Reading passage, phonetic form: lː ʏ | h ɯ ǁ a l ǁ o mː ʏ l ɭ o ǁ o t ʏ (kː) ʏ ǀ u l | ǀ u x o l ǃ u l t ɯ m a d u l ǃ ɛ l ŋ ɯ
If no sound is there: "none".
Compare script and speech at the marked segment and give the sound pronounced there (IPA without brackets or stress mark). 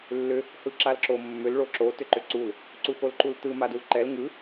ǃ